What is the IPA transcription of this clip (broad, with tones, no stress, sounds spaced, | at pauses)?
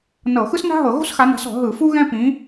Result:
n ɤ˧˩˧ x ɯ˥ s n a̤˥ ɦ ɤ˧˩˧ ɣ o̤˥ s x a˨˦ n a̤˨˦ s ɔ̤˧˩˧ ɦ ɯ˧˩˧ f u˥ ɣ ɛ̃˥ p ĩ˨˦